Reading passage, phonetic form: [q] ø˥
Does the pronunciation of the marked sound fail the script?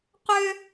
no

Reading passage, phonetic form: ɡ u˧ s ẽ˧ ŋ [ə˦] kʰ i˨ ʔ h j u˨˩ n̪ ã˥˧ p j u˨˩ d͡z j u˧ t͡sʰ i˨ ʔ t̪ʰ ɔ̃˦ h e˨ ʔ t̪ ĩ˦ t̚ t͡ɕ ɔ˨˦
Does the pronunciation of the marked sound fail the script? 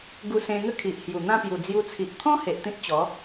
no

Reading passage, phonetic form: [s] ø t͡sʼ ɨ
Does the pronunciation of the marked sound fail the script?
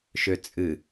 yes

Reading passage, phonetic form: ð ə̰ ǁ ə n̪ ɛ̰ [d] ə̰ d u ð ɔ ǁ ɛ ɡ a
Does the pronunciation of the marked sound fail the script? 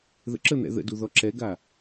yes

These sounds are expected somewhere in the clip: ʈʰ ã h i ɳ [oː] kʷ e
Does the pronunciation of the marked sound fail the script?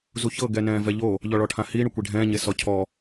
yes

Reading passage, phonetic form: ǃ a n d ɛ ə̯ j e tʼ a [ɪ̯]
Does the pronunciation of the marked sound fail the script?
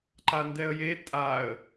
yes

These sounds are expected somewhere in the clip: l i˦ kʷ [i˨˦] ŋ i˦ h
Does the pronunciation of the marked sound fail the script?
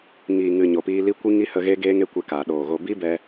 yes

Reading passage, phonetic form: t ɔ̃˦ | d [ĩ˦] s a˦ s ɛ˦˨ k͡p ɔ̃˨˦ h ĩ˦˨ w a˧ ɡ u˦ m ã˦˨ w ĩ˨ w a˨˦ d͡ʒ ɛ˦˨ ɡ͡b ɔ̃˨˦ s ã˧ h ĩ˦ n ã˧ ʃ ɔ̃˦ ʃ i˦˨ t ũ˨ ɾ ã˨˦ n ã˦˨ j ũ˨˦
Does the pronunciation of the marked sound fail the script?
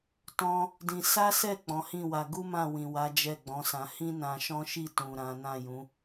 no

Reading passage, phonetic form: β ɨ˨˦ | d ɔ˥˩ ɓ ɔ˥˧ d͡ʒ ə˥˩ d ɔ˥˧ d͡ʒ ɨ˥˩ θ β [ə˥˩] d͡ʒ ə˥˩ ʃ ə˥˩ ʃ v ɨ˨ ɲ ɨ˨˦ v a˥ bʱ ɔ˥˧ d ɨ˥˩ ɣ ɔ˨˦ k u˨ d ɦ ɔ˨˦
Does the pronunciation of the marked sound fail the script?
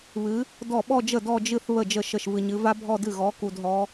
no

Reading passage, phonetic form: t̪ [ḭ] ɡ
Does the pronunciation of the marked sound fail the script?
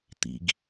no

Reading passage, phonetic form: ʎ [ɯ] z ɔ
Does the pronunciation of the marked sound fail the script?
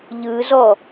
no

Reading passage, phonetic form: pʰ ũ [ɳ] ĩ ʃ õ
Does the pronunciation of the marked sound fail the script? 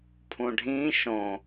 yes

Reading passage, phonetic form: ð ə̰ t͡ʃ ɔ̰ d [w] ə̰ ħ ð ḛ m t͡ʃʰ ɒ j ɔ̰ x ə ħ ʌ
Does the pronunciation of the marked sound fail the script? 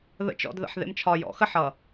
yes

